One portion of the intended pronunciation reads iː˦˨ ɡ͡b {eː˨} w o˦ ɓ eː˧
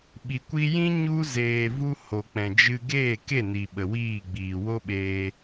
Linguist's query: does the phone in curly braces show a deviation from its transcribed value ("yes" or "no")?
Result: yes